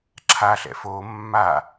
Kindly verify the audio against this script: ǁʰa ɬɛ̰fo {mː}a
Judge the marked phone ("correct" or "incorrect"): correct